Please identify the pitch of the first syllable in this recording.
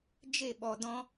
falling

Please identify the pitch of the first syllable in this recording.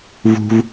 high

